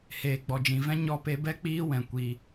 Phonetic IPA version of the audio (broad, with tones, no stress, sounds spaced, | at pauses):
h eː˨ ɡ͡b ɔ˨ d͡ʒ ĩ˨ v ɛ̃˦ ɲ ɔ˧ p e˧ b ɛ˦ k͡p iː˦ w ɛ̃˨ kʷ i˧